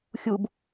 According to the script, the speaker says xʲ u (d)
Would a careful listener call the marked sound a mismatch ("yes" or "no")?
yes